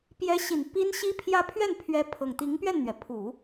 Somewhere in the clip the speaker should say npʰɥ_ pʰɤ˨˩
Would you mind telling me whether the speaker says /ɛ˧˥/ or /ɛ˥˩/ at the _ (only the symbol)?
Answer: ɛ˧˥